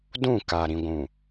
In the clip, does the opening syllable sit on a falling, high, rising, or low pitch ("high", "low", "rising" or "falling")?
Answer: falling